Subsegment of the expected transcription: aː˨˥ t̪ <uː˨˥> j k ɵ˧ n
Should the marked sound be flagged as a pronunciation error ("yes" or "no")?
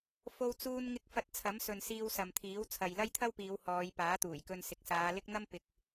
yes